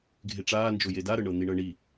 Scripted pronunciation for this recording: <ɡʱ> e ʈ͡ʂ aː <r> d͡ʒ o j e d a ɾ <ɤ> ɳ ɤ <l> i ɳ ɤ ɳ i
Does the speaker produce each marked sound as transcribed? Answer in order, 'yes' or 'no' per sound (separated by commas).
yes, no, yes, no